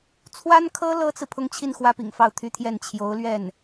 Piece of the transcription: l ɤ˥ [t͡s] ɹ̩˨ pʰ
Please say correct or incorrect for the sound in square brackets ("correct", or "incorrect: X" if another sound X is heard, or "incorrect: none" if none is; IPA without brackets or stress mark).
correct